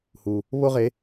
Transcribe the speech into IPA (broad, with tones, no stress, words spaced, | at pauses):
hu˨˩ | βo˥ʁe˨˦